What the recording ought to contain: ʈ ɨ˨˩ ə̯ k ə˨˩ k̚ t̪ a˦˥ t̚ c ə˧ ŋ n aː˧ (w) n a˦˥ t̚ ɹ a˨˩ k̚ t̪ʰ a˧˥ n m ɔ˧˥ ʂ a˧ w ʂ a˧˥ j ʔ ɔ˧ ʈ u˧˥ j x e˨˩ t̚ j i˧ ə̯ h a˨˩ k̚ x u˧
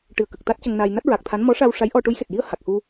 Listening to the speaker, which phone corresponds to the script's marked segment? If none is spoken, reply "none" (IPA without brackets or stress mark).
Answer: j